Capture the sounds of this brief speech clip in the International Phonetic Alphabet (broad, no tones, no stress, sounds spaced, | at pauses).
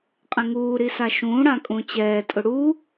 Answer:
qʼ ɛ̃ ŋ uː ɾ i s a ʃ ũː ɽ ã kʼ ũ t͡ɕ ɛː tʼ ʊ ɽ u